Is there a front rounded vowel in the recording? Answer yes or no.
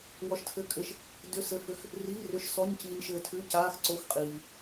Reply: yes